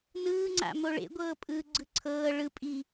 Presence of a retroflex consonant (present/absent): present